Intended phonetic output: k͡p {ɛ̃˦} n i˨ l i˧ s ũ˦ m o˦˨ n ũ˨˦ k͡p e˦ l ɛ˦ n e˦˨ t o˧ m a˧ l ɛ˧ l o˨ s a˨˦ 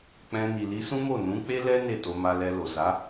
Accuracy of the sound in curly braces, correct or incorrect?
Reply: incorrect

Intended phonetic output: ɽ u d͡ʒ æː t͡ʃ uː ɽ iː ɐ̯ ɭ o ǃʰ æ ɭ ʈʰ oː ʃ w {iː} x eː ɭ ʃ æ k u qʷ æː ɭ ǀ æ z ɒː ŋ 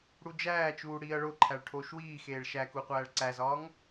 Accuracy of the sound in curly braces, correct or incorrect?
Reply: correct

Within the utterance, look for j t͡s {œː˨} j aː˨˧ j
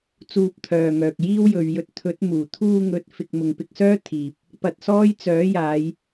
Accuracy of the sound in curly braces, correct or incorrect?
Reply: incorrect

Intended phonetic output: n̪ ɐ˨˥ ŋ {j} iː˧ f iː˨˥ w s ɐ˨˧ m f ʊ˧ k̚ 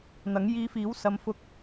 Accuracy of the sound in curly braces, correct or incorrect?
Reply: correct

